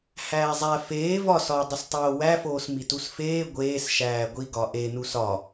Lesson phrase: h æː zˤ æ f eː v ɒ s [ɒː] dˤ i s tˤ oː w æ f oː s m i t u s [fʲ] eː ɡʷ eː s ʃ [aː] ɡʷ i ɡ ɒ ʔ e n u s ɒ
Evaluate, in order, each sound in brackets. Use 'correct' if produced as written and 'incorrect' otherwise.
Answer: correct, incorrect, incorrect

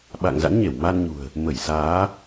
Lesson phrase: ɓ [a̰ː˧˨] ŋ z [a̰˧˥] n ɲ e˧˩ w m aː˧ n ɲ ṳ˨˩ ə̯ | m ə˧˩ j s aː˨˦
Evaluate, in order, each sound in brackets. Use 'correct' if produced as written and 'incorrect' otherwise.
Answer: correct, correct

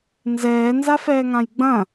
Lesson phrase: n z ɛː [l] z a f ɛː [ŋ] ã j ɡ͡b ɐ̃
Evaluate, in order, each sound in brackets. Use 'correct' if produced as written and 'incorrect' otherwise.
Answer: incorrect, correct

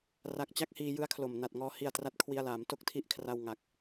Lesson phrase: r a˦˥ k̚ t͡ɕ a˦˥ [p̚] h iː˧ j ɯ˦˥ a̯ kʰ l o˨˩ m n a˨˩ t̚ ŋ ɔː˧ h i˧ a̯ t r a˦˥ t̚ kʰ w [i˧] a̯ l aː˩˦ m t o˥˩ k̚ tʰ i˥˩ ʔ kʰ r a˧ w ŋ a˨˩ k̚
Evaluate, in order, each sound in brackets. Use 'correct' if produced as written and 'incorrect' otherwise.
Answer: incorrect, correct

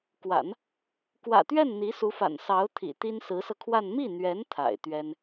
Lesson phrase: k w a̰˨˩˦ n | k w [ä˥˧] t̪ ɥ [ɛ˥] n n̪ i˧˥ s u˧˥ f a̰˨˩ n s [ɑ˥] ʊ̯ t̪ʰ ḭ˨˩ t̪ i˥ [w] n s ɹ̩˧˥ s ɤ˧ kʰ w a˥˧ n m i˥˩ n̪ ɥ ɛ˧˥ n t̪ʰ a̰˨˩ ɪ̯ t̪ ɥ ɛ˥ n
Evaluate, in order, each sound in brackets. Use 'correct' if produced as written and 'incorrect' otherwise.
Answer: incorrect, incorrect, incorrect, incorrect

